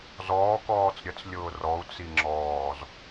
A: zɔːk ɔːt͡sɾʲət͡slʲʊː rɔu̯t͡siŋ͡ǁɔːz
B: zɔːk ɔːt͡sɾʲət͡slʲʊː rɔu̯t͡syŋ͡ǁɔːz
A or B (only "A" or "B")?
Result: A